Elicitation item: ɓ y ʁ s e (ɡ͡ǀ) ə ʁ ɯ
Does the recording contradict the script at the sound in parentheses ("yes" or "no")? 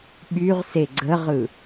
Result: no